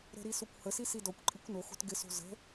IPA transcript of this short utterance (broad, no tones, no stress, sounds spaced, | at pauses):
ɾ ə̤ ɾ i s o kʷ h ə s i s i d ɔ kʷ ǃʼ i kʷ n o x o̤ t ɡ ɪ s o̤ z ə̤